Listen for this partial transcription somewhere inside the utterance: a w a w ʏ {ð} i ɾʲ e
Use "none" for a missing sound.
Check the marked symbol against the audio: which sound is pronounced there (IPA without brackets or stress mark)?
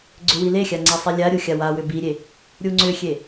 b